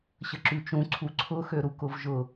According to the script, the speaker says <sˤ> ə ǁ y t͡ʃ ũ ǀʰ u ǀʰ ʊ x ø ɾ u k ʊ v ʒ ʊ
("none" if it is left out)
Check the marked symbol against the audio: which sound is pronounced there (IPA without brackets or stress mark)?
ɕ